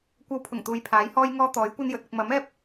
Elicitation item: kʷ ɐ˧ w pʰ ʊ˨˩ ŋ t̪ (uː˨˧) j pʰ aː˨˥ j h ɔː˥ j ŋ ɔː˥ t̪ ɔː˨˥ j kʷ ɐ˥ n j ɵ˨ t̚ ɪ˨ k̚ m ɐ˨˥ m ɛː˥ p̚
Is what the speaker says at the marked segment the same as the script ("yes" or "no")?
yes